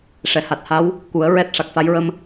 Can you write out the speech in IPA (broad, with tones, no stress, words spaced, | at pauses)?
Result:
ʂɛ˨˩˨ha˨˩t̚ha˧˥w | ku˨˩˦ə̯ ɹɛ˦˥t̚ ʂa˨˩k̚fa˧˥j ɹə˧m